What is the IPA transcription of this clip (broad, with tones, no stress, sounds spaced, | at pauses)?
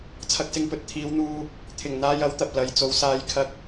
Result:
t͡sʰ ɐ˧ k̚ s ɪ˧ ŋ p ɵ˧ t̚ t̪ʰ iː˨˧ w n̪ uː˧ | t̪ʰ ɪ˨˩ ŋ n̪ aː˧ j ɐ˨˥ w t̪ ɐ˨ p̚ l ɐ˨˧ j t͡s o˨˧ w s aː˧ j kʰ ɐ˧ k̚